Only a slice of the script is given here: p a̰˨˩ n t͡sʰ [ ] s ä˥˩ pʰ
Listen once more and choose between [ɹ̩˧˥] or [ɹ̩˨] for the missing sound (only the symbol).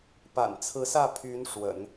ɹ̩˧˥